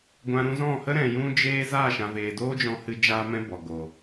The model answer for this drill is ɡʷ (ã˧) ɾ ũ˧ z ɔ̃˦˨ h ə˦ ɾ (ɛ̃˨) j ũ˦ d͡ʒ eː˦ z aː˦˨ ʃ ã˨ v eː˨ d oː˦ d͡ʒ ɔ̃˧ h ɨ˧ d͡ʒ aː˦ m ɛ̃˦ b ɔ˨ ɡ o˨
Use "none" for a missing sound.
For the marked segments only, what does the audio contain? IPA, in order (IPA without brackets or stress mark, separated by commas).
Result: ã˧, ɛ̃˨